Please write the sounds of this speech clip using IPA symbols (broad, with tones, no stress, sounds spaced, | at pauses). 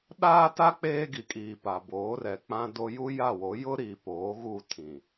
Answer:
ɗ aː˦ t a˦ k͡p eː˦ ɡ i˨ kʼ iː˨ p a˨ b oː˨˦ r ɛ˨ k͡p ã˦ d o˦ j u˦ j a˦˨ w o˨˦ j ʊ˦ ɾ iː˨ p oː˨˦ ɣ u˦˨ tʰ ĩ˨